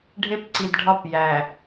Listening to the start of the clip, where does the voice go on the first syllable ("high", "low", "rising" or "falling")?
high